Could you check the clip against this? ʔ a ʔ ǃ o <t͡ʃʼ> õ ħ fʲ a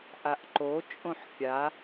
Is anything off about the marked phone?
no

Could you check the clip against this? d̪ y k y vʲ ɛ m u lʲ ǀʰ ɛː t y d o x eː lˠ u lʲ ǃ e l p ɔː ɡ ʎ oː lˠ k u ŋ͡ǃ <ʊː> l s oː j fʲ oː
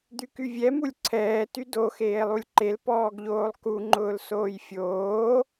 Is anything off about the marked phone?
no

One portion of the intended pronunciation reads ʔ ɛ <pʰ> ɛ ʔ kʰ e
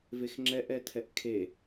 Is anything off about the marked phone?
yes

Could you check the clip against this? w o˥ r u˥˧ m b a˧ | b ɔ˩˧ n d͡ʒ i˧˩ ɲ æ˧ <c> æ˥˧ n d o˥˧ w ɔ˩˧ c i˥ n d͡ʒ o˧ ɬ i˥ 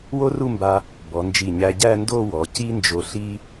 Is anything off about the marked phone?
yes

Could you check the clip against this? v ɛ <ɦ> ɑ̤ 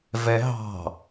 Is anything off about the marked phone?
no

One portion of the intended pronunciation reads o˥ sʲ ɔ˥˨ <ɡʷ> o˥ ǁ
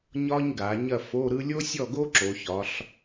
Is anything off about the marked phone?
yes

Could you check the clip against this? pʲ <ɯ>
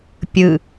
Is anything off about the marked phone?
no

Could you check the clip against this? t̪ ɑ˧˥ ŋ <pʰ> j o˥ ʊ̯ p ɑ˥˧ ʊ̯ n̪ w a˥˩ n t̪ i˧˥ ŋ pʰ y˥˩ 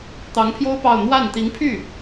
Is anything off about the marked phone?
no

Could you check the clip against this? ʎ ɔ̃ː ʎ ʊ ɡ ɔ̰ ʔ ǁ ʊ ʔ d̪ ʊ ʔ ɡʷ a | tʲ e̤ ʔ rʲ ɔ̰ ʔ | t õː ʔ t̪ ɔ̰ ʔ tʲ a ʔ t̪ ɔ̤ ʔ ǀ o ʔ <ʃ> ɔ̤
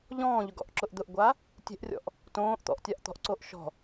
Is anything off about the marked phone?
no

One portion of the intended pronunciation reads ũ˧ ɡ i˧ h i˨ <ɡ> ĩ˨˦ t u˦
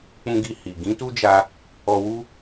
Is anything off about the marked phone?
no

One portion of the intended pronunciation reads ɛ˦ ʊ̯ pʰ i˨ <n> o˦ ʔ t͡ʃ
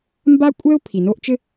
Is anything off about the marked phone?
no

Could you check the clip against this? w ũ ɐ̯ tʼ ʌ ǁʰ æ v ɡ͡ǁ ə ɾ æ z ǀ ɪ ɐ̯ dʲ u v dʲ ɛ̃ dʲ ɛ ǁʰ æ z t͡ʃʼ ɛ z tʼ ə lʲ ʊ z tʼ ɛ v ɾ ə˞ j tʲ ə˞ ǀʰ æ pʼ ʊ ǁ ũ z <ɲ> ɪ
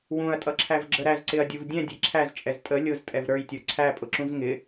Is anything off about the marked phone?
yes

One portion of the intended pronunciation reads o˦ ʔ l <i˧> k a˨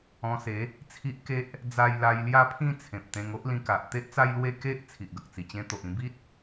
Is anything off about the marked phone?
yes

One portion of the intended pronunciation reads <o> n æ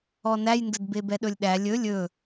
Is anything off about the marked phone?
yes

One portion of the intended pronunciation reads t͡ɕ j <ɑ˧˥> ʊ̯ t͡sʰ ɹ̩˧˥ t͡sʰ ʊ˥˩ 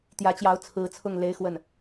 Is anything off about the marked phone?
no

